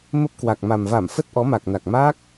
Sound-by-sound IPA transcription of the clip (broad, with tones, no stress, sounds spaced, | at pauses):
m ə˦˥ p̚ k w a˨˩ k̚ m a˨˩ m v a˧˩ m f ə˦˥ t̚ ʔ ɔ˨˦ m a˨˩ k̚ n a˨˩ k̚ m a˦˥ k̚